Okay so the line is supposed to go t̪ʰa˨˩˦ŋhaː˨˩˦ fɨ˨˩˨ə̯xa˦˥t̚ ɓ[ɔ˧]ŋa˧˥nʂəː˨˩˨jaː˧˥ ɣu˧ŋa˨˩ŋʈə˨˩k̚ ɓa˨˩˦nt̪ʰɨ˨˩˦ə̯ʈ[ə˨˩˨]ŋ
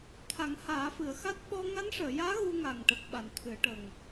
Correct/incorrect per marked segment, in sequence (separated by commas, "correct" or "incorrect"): correct, incorrect